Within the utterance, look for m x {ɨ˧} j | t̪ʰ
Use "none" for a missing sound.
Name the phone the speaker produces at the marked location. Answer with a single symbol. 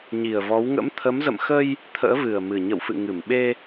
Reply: ə˧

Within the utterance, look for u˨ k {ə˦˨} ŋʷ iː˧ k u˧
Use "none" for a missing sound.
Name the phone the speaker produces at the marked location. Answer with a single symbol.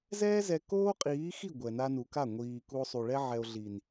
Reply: a˦˨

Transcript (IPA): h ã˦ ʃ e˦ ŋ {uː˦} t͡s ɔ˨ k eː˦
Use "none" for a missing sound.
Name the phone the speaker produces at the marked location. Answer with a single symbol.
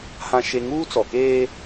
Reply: uː˦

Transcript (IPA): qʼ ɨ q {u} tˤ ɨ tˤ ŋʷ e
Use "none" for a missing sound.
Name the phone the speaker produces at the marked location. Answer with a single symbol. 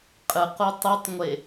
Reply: u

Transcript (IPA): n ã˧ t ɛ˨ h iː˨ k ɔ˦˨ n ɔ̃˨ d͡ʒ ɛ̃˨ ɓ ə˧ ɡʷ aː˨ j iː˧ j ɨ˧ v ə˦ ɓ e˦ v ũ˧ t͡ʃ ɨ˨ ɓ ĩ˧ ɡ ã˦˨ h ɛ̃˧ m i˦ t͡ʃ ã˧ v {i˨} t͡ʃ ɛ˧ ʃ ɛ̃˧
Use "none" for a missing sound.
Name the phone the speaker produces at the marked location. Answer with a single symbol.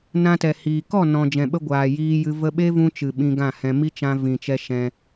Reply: ĩ˨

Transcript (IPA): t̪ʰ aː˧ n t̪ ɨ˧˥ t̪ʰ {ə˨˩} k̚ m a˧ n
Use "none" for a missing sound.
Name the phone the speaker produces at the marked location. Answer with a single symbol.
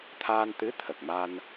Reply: ə˨˩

